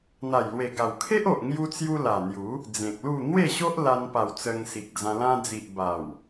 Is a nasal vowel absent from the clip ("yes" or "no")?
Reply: no